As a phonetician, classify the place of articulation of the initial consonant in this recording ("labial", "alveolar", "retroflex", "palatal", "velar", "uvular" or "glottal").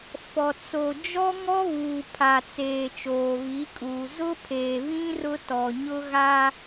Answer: labial